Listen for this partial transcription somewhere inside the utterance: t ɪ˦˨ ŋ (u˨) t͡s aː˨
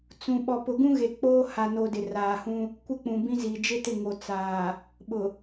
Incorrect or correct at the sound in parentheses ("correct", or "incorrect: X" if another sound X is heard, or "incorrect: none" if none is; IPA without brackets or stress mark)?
incorrect: o˨